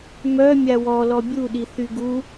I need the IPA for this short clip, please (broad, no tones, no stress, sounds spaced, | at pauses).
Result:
m œ mʲ a w ɔ l ɔ bʲ u ɗ i θ y ɡ u